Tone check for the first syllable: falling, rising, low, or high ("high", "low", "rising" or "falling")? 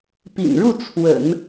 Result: low